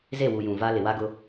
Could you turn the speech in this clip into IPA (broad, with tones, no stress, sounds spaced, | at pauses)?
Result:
z e˦˨ w u˨ j ũ˨ v a˦ l ɪ˨ w a˦ ɡ ʊ˦